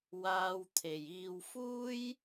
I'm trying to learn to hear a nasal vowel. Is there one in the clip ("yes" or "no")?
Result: no